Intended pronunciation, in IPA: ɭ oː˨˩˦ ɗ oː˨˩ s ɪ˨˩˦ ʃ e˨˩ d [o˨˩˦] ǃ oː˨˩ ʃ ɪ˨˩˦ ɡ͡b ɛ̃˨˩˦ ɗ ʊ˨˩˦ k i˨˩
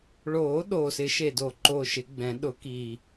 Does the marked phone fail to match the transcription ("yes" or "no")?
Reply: no